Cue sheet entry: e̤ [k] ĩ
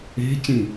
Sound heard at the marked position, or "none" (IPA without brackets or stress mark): c